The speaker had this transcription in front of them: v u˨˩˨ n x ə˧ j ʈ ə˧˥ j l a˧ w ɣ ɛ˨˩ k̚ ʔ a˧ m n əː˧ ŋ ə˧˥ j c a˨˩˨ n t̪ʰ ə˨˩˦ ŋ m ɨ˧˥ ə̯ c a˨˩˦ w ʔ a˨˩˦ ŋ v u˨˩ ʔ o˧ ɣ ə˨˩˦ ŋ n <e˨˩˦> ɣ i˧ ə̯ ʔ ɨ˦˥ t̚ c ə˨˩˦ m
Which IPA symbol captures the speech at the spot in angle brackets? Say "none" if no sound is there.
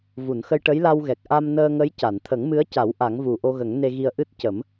e˧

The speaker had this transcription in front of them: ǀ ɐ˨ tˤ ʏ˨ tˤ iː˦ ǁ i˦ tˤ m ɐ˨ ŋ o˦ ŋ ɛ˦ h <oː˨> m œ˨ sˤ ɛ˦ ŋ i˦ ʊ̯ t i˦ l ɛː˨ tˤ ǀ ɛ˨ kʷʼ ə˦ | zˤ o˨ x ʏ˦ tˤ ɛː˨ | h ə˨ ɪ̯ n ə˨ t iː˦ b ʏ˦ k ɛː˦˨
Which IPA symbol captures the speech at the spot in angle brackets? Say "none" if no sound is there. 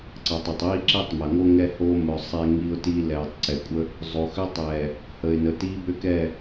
oː˦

